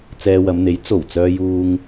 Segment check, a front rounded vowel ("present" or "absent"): present